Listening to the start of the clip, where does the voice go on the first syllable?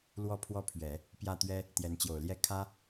high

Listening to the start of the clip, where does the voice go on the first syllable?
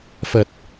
low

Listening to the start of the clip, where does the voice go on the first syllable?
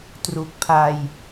low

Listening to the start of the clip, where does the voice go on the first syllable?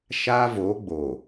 high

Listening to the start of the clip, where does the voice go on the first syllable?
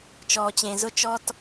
low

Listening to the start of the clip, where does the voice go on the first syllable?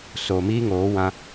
low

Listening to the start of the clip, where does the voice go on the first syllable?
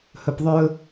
low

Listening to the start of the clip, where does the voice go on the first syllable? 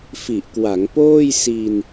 low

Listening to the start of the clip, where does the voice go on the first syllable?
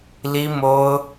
high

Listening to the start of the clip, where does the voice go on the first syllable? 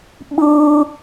high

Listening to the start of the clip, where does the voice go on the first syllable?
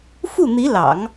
falling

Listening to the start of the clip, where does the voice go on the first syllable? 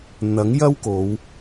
rising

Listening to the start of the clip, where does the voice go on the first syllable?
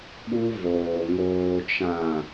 high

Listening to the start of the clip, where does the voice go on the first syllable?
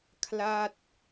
falling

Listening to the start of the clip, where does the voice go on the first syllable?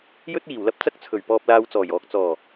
high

